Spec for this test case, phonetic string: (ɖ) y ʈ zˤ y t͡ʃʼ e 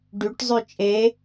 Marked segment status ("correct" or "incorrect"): correct